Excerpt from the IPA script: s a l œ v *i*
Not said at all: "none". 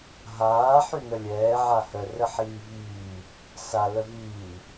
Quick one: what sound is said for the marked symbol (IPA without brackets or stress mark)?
iː